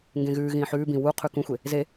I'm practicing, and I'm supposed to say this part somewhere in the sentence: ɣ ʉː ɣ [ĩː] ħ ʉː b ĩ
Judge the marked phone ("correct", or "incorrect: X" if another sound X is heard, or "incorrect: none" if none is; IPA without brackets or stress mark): correct